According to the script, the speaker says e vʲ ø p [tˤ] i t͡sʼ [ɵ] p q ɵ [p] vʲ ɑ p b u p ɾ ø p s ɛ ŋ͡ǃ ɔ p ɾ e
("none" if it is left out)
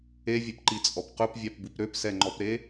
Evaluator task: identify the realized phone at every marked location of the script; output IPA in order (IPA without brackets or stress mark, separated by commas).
ǃ, ɔ, p